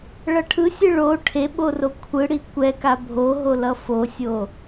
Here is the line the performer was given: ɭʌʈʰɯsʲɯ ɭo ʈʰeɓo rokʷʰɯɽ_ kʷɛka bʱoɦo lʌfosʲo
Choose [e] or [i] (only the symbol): i